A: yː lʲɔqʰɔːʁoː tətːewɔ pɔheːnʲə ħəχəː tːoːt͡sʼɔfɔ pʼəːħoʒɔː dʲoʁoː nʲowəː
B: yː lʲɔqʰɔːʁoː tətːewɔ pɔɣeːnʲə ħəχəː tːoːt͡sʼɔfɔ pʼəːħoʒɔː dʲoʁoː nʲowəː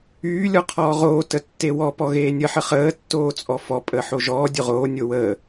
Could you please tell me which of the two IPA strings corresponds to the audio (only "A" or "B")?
B